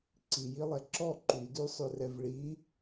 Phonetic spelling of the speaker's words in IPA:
ǀ i j i lˠ ɛ ǁ ɔ ǃ y d ʉ sˤ ɵ r ɛ v ɭ i

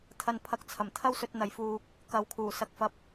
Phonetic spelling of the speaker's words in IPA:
t̪ʰ ɐ˨ n pʰ ɐ˨ k̚ t͡sʰ ɐ˨˩ m t̪ʰ ɐ˥ w s ɵ˧ t̚ n̪ ɐ˨ j f uː˧ k̚ | k ɐ˨˥ w kʰ uː˨˩ s ɐ˧ k̚ f ɐ˥ p̚

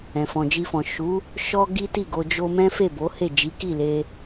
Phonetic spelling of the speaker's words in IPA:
ɛ̃˨ f ɔ̃˨ d͡ʒ i˧ f ɔ̃˨ ʃ u˨˦ | ʃ ɔ˦ ɡ i˦ t i˦˨ ɡ o˧ d͡ʒ o˧ m ɛ̃˦ f e˦˨ b o˨˦ h e˦˨ d͡ʒ i˨˦ k i˦˨ l e˧

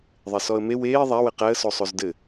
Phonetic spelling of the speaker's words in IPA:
ðˤ e s ɔ ə̯ m e w eː ðˤ æ w ɘ q æ ə̯ s o sˤ o z d ɘ

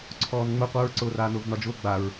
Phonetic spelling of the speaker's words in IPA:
ǀʰ ɔː n ŋ͡m ʊ qʷ œ ɹ ǀ ʊː r aː n ʊː v n ɒ d͡ʒ ʊː ɡ͡b a ɹ

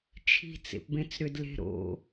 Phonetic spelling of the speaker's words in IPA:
t͡ʃʰ i̤ t͡s ḛ p b ẽ t͡s ɾ ʏ d l e̤ ɾ o̰

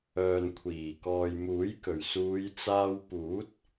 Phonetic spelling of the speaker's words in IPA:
œː˨ n kʷʰ iː˨˩ k ɔː˨ j m uː˨˥ j k ɵ˨˩ ɥ s uː˨˧ j t͡s aː˧ w p uː˨˥ t̚

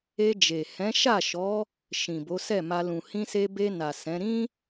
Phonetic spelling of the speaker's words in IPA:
e˧ d͡ʒ e˨ h ɛ̃˨˦ ʃ a˦˨ ʃ ɔ˨˦ | ʃ ĩ˨ b o˨˦ s ɛ˦˨ m a˧ l ũ˨ h ĩ˧ s e˧ b e˧ n a˨ s ɛ̃˨˦ ɾ ĩ˦

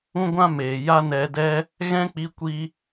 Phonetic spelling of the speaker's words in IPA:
ũ˦ ɡʷ ã˦ m eː˨ j a˦ n ɛ˧ d ɛ˦ | ɣ ɛ̃˦ k͡p i˧ kʷ i˧

